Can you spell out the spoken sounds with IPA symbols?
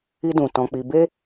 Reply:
i˧dũ˨ tɔ̃˧k͡pi˧ be˦

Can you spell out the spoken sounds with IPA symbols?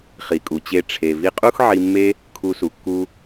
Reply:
χi˩kʼu˩t͡ɕe˧ ʈ͡ʂʰe˩ vi˧qʼu˥x ʕi˧mːe˥ | kʰu˧su˩kːu˧

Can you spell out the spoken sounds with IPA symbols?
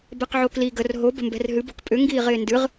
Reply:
bɛqʕokli ɡər ɦob ə̤mbɛ̤rɦɨb okpʼʏ ŋɡiːʁɪːndɨʁ

